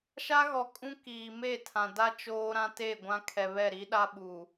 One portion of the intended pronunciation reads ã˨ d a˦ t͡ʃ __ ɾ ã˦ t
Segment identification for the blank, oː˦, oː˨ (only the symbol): oː˦